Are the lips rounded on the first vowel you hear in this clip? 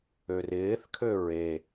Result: yes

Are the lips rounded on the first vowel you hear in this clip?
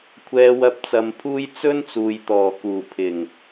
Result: no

